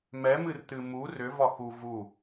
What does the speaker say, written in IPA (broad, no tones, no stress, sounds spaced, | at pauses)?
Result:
m ɛ m ɨ r t ɨ m u r ʏ v ɒ x u v u